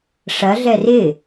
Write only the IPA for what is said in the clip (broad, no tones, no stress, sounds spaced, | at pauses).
ʂ ɐ ɮ ɛ r ɪ